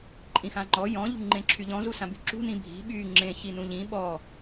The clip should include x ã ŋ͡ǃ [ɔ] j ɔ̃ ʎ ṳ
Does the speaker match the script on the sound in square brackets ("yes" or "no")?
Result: yes